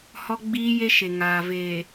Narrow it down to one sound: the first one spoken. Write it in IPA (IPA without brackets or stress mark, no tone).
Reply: h